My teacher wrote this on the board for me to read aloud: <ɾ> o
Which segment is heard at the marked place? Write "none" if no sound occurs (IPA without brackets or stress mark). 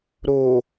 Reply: ɾ